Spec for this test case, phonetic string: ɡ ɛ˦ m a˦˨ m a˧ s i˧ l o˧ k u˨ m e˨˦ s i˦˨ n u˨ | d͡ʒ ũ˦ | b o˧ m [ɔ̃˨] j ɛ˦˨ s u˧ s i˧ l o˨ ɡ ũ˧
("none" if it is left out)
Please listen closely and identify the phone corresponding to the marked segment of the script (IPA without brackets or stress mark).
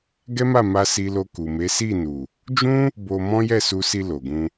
ɔ̃˦